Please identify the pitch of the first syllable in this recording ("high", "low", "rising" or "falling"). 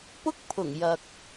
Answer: high